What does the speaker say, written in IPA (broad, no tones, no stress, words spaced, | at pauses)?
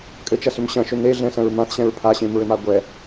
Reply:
kʼɘt͡ʃɐsʏm ɕɐ̃ʃʏ neɮɛ̃sɐ̃ɹ mãθɕɛ̃ɹ pʰaɕẽmɹɘma ɡʷɛ